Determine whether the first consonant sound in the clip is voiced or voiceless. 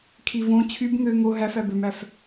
voiceless